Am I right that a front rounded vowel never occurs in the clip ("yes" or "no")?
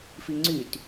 no